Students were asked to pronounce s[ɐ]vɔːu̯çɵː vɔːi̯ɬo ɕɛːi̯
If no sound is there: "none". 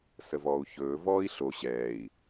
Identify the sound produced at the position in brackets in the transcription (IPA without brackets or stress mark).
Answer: ə